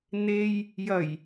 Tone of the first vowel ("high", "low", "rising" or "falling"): low